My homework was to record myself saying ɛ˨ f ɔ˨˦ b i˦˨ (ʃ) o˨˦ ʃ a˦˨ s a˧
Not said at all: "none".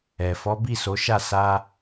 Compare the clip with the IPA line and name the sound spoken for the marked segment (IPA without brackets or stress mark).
s